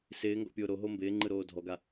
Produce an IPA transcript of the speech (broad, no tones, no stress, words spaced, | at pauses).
sɪːŋɡɔ̰pʲoː ɾoɦo mbɪːŋ͡ǃɯɾoː dʱɔɡa